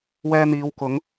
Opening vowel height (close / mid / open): mid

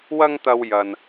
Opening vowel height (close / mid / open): open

